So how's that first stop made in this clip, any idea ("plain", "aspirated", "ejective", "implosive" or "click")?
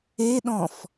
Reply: implosive